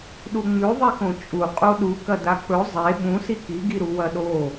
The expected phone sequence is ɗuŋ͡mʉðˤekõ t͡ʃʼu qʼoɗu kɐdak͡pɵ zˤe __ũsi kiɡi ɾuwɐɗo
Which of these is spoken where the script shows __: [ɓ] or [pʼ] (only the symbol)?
ɓ